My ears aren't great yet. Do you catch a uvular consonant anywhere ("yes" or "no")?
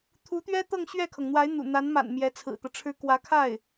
no